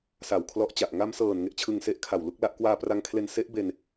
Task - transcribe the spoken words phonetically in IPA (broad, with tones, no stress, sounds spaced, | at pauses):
s a˨˩ w kʰ l ɔ˦˥ ʔ t͡ɕ a˨˩ ʔ ŋ a˧ m s ɤː˨˩ n ŋ e˥˩ ʔ t͡ɕʰ ɯ˧ ŋ s e˦˥ ʔ kʰ a˨˩ w l u˦˥ k̚ l a˥˩ ʔ k w aː˧ p r a˧ ŋ kʰ l e˧ n s e˦˥ ʔ b e˧ n